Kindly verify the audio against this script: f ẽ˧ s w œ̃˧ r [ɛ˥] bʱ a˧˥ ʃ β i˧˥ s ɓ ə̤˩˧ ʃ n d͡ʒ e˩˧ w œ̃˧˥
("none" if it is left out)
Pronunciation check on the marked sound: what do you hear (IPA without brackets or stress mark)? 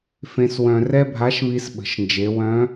ɛ˥